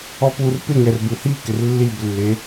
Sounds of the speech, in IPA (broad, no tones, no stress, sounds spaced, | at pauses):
ɔ p u r p ɪ ŋ ɛ r b u h i k ɪ r lː i b lː e